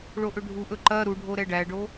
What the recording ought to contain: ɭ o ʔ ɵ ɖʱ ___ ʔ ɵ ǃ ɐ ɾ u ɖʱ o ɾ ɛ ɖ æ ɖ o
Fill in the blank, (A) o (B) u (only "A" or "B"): B